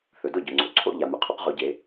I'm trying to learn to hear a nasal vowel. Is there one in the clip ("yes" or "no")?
no